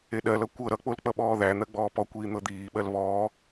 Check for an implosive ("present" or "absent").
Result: present